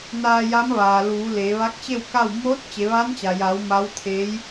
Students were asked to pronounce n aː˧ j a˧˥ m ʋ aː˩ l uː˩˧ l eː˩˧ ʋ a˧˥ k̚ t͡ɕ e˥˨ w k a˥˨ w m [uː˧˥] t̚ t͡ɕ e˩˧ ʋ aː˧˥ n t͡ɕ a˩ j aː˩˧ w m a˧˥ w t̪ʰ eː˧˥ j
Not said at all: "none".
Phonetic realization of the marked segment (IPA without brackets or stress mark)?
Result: oː˧˥